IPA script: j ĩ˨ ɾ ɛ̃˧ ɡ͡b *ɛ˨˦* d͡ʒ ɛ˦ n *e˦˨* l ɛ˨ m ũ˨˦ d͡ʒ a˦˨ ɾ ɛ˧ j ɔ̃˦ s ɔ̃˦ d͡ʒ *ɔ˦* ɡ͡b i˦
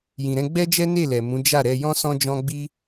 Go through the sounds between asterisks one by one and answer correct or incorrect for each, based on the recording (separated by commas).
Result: incorrect, correct, incorrect